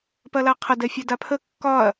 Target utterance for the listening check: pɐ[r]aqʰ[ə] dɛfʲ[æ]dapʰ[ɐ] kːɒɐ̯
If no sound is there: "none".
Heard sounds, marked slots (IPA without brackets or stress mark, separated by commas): l, ɐ, æ, ə